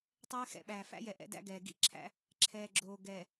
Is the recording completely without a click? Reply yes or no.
no